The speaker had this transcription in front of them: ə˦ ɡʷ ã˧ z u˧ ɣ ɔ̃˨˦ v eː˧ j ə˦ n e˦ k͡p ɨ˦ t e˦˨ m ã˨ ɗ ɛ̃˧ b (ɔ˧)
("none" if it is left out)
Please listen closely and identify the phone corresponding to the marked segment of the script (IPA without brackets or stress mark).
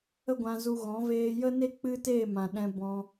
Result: ɔ̃˧